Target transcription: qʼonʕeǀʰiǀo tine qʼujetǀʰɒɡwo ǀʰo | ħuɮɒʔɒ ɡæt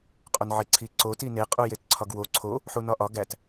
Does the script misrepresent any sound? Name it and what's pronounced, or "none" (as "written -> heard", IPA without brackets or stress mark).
ɮ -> n